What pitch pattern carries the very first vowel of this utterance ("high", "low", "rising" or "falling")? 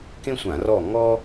high